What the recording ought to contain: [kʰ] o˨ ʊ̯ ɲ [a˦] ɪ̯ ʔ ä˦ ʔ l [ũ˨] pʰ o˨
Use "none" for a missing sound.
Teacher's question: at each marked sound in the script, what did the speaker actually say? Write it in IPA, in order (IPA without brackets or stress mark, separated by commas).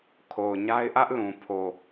kʰ, a˦, ũ˨